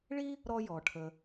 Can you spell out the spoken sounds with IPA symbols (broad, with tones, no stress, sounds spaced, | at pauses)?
ɭ i˥ | ɾ ɔ˦ j ɔ˩ ʈʰ ə˨